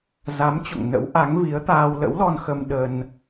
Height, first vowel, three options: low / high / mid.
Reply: low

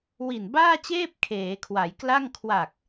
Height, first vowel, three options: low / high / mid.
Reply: high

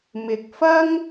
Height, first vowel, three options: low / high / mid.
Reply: high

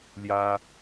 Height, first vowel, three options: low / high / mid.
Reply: low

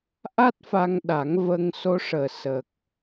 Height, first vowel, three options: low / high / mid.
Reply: low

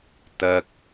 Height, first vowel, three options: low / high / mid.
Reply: low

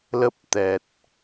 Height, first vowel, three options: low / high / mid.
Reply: mid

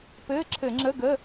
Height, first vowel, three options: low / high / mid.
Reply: mid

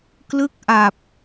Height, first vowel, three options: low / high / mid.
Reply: high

